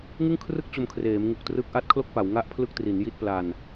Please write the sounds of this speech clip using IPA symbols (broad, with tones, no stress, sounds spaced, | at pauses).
ŋ ɯ˥˩ ŋ kʰ r ɯ˥˩ k̚ t͡ɕ o˧ m kʰ r eː˩˦ m ŋ u˨˩ k̚ t r ɯ˦˥ k̚ ʔ a˦˥ t̚ kʰ l o˥˩ k̚ p a˩˦ w ŋ a˥˩ ʔ pʰ l ɯ˥˩ k̚ t r i˩˦ n j i˥˩ t̚ p l a˧ n